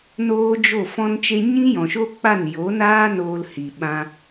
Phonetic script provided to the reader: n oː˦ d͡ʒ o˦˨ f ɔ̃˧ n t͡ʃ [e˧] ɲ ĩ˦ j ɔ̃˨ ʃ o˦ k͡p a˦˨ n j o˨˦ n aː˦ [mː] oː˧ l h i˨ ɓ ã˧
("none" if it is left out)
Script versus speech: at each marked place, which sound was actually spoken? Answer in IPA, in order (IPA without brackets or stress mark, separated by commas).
e˧, n